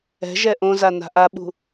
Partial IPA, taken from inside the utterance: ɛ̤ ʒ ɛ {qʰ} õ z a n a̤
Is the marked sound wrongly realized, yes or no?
yes